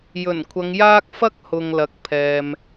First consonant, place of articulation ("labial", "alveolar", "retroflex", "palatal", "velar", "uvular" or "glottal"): palatal